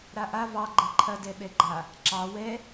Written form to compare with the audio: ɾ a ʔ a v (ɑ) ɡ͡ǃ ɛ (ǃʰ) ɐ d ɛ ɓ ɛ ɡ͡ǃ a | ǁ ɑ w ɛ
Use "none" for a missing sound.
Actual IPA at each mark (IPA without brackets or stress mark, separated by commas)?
ɑ, ǃʰ